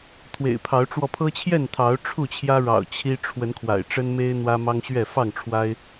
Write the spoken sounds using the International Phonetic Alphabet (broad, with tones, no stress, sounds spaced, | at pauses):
t̪ʰ w ḛ˨˩ ɪ̯ pʰ ɑ˨˦ ʊ̯ ʈ͡ʂ w ɔ˧ pʰ ɤ˦ t͡ɕʰ j ɛ˥˨ n t̪ʰ ɑ˨˦ ʊ̯ ʈ͡ʂʰ u˥˨ t͡ɕʰ j ä˦ ɻ ɑ̰˨˩ ʊ̯ t͡ɕʰ i˦ ʈ͡ʂʰ w ə˨˦ n kʰ w a̰˨˩ ɪ̯ ʈ͡ʂ ə˦ n m e˦ ɪ̯ n̪ w ä˦ m ɑ˦ ŋ ɕ ɥ ɛ˥˨ f ɑ˥˨ ŋ ʈ͡ʂʰ w a˦ ɪ̯